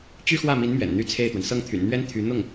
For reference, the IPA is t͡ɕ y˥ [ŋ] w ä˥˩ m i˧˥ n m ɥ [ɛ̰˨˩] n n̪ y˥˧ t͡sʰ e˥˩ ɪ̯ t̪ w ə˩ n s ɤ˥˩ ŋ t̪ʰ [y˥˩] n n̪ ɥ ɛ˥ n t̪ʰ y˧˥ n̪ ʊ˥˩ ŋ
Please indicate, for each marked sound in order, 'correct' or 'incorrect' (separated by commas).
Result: incorrect, correct, incorrect